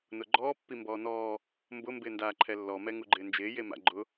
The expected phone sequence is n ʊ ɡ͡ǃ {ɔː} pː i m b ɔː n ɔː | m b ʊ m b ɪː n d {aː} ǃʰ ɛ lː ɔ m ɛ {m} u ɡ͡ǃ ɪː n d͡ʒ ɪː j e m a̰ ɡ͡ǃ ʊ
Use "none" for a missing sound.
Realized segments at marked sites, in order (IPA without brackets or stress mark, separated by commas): ɔː, aː, ŋ